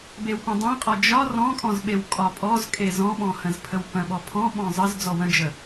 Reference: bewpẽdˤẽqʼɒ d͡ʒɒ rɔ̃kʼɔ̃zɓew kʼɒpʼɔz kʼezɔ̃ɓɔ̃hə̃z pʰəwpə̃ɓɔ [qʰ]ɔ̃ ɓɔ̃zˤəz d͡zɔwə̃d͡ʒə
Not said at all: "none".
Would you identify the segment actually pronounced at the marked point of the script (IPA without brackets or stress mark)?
pʰ